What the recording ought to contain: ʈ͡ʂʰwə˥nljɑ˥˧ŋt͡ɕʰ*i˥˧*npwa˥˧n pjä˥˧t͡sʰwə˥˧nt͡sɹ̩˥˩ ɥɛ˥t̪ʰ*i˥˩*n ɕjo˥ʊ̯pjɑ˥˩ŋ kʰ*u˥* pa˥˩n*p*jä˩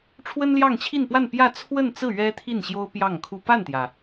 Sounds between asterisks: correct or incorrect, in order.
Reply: correct, correct, correct, incorrect

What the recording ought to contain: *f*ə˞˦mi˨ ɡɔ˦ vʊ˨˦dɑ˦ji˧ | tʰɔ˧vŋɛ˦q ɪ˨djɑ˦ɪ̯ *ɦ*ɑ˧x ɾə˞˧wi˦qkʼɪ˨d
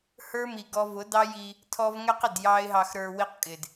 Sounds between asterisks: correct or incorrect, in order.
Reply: incorrect, correct

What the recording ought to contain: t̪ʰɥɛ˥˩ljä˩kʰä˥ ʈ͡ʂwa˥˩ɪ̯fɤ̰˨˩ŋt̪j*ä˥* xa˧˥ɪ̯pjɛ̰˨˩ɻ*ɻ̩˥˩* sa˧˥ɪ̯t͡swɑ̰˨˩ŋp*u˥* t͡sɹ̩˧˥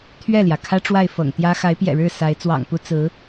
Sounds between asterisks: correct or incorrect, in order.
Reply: correct, correct, correct

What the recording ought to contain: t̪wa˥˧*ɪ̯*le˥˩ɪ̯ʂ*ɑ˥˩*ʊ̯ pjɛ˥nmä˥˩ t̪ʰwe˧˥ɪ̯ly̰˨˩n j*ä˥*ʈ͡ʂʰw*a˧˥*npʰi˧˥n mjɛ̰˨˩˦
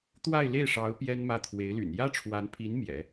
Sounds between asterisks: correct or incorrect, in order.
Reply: correct, incorrect, correct, correct

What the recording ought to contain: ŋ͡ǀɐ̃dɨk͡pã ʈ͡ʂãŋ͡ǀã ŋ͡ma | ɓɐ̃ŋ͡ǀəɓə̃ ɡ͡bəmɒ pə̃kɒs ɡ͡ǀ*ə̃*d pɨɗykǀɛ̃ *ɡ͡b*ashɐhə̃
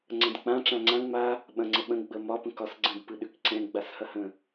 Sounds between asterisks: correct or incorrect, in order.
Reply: correct, correct

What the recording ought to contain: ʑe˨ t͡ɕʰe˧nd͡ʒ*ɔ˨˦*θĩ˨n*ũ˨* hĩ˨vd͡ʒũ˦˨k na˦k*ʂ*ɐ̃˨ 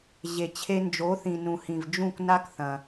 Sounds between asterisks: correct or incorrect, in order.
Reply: incorrect, correct, incorrect

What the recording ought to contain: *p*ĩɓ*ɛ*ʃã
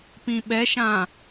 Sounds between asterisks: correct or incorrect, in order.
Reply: correct, correct

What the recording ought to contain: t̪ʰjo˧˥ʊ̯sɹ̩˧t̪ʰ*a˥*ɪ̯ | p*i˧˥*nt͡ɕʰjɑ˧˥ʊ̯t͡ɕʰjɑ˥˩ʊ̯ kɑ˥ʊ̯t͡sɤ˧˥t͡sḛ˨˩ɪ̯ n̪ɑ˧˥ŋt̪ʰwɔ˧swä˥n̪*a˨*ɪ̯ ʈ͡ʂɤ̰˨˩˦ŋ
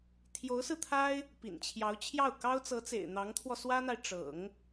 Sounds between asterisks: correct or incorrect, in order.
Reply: correct, incorrect, correct

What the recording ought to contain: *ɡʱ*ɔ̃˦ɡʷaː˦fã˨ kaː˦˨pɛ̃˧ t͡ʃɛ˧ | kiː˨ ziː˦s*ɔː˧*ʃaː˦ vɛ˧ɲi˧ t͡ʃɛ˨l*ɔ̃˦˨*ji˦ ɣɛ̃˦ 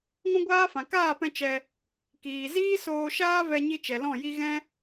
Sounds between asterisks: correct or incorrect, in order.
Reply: incorrect, incorrect, correct

